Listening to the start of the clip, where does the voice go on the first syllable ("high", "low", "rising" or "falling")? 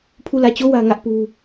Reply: falling